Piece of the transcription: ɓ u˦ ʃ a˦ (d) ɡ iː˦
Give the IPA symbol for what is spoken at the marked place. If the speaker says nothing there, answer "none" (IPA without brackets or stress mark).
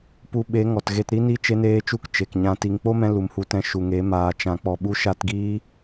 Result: t